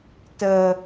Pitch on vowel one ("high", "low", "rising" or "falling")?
low